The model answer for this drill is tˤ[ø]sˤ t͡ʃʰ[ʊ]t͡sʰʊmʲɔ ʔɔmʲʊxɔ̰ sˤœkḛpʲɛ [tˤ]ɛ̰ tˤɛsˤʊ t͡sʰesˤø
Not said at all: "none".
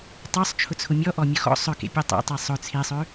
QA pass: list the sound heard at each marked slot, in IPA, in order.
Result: œ, ʊ, tˤ

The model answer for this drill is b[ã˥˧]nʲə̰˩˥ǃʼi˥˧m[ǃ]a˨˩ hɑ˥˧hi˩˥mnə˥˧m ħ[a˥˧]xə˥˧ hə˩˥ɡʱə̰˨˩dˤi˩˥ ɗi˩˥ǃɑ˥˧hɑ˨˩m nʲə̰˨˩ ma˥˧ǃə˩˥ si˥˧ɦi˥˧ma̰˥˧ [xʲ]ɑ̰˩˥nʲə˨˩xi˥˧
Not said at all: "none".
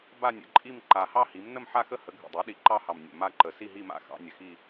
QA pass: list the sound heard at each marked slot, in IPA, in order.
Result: a˥˧, ǃ, a˥˧, x

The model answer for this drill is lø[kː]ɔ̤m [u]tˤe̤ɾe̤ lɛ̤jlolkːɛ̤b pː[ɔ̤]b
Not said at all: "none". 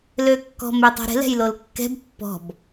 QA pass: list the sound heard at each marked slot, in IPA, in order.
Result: kː, ø, ɔ̤

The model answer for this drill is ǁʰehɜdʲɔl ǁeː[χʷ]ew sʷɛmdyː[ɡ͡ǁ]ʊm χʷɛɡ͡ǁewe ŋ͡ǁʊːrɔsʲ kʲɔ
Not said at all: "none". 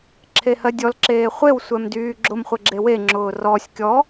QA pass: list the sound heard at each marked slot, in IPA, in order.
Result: χʷ, ɡ͡ǁ

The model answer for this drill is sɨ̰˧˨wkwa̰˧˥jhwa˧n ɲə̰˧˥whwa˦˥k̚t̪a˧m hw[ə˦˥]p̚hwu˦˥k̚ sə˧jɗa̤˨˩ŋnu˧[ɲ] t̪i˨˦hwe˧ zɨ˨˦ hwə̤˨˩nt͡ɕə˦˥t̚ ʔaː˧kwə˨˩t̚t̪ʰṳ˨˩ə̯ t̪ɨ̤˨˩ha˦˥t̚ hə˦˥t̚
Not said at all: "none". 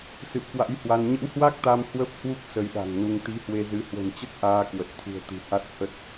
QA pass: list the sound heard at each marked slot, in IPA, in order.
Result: ə˦˥, ŋ

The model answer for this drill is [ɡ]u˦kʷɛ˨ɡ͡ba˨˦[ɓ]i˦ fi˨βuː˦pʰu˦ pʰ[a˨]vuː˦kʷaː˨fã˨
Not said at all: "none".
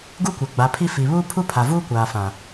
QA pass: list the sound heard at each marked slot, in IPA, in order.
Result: ɡ, pʰ, a˨

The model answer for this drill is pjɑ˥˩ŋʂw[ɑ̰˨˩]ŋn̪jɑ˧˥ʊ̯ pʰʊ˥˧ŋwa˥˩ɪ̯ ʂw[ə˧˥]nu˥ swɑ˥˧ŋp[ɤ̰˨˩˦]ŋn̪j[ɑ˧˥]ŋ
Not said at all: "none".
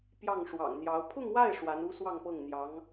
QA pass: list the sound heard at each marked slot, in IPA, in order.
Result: ɑ̰˨˩, a˧˥, ɤ˥˩, ɑ˧˥

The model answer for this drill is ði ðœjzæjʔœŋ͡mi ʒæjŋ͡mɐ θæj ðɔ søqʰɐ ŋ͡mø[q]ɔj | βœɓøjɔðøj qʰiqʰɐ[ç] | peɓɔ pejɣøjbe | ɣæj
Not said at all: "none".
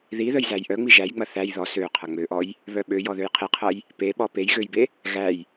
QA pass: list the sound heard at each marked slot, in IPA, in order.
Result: ʔ, j

